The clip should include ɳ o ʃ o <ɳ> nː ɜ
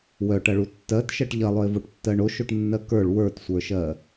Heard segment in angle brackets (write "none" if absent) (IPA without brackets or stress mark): ʈ